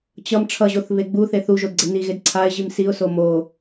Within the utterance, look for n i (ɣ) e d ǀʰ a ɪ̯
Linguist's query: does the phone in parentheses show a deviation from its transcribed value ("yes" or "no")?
no